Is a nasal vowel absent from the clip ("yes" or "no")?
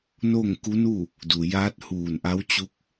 yes